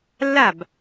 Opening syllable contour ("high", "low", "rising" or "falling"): falling